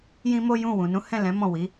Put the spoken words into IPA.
jĩ˦mo˦jũ˦˨ wũ˨nũ˨˦ hɛ̃˦˨lɛ̃˨˦ mɔ̃˦˨wi˨˦

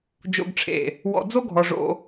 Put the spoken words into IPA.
d͡ʒo̰˨ɡʈ͡ʂʰḛ˨ | wɔ̰˨d͡zo˦ɡʱɔ˨ ʐo̰˦

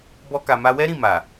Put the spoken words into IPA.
bɔ˦ka˧ ma˧wɛ˦ɾĩ˦˨ ma˨

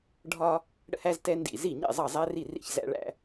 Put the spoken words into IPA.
ɖʱɒ˥ | ɽə̰˥˩hæ˥ztɛ˥ ndḭ˥˩ zi˥˩ɲɛ̰˥˩ zˤʌ˥˩zˤæ˥ri˥˩rḭ˥˩ç zæ̰˥ɭæ̰˥

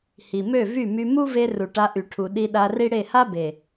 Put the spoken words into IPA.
hi˨mø˦˨vy˦˨my˧ mu˦ve˧ ru˨ʈa˧ʔy˨ʈʰu˨ ɗi˧ ɗa˧ri˦ɽe˦˨ ha˦be˨

